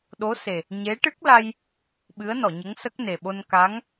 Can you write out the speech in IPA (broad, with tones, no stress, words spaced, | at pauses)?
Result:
ɗo˧˥se˨˩ | ɲe˧˥ ʈɨ˦˥k̚la˧j | ɓɨ˧˥ə̯nɔ˨˩˨ɲə˧˥ŋ sə˦˥k̚ne˨˩ɓo˧n ka˧˥ŋ